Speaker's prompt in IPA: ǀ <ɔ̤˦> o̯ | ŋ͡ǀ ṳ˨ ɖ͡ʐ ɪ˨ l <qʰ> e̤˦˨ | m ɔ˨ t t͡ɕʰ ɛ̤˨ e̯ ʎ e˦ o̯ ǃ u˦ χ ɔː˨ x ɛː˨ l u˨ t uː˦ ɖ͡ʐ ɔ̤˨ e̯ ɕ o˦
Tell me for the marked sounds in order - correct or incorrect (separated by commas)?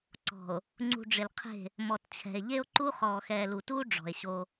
incorrect, correct